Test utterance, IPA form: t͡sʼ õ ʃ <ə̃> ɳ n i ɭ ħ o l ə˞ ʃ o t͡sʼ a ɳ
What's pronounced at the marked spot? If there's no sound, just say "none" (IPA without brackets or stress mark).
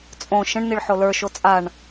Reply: ə̃